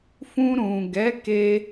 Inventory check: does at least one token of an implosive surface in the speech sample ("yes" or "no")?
no